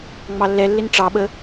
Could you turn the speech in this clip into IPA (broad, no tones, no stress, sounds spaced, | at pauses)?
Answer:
ŋ͡m ɑ lː ɛ lː ɪ n ʈ͡ʂ ɑ ɓ ə